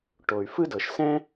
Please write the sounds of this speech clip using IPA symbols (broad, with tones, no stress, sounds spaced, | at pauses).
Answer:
ʈ o˩ y̯ f ɯ˥ d ɤ˩ ʃ s ɛ̃˥